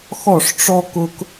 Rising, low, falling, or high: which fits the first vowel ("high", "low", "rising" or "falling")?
falling